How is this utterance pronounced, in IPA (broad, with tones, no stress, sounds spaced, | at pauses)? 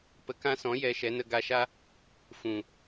p ə˨˦ k ã˧ s ɔ̃˨˦ j ɛ˧ ʃ ɛ˨˦ n ə˧ ɡ a˧ ʃ a˦ | f ũ˨